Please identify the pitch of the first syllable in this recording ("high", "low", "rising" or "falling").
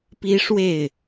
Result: high